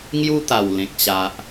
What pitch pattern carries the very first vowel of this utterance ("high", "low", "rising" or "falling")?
high